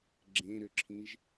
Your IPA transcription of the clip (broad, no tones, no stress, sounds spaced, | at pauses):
ɡ͡ǁ ẽ ɾ ʏ ǁʰ ĩ ʒ